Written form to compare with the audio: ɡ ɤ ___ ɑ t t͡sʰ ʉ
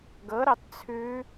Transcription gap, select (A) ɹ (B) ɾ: B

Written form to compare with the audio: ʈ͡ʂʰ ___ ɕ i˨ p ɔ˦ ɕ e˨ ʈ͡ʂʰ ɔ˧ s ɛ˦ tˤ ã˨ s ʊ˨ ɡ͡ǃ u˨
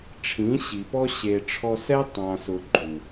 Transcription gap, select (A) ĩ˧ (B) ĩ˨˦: B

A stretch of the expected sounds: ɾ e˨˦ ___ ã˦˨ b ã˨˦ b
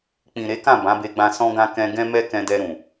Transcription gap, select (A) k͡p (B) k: B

